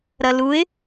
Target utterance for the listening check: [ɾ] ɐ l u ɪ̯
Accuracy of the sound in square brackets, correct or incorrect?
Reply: correct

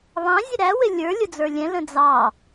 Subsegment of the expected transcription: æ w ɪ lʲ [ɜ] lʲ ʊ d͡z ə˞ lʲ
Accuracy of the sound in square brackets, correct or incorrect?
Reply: incorrect: ə˞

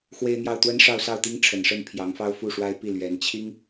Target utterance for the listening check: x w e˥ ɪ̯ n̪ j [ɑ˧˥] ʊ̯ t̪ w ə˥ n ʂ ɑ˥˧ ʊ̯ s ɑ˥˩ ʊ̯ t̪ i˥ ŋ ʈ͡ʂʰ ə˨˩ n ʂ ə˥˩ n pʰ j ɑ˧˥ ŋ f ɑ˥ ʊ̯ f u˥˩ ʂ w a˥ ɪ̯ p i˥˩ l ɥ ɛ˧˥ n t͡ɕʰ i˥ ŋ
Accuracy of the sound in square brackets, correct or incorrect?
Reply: incorrect: ɑ˥˩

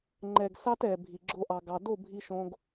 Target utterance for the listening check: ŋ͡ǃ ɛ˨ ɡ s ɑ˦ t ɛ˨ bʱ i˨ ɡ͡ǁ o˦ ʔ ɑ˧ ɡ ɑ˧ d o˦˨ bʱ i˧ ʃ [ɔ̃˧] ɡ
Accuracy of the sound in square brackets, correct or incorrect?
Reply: incorrect: õ˧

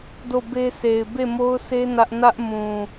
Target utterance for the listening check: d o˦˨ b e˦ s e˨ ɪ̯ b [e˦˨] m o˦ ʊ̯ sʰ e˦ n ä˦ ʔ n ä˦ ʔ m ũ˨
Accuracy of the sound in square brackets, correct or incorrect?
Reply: correct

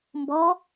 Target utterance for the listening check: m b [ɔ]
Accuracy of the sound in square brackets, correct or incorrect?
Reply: correct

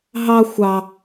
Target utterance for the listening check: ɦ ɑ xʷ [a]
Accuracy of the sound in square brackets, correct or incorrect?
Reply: incorrect: ɑ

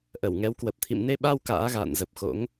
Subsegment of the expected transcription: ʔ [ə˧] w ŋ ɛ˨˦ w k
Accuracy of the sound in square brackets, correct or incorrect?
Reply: incorrect: ə˧˩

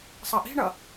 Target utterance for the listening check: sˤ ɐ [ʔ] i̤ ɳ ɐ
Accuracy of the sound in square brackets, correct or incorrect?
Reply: correct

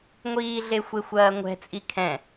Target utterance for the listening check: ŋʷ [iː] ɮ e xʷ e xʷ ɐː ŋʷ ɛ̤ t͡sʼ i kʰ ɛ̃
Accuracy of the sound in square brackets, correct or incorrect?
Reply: correct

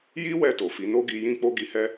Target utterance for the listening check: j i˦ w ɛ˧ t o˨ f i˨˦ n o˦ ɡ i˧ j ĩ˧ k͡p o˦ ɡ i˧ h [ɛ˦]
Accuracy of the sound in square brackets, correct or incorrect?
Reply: correct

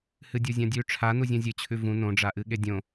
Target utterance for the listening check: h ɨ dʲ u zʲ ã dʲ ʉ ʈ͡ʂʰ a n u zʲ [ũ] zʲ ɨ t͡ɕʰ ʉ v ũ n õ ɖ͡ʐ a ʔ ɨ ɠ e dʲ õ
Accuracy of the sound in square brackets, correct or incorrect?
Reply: correct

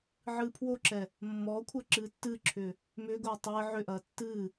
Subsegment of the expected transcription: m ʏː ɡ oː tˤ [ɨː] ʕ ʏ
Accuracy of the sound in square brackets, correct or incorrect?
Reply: correct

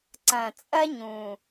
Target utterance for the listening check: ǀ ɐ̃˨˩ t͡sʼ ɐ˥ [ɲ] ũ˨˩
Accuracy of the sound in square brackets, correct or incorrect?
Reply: correct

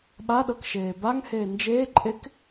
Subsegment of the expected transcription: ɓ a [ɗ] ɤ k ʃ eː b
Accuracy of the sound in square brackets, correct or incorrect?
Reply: correct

